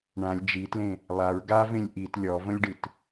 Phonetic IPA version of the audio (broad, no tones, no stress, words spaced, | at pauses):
ɳãlʲ d͡ʒitlẽ | lˠaɹ ɡavẽlʲ ʔit lʲɔvə̃lʲɖɨt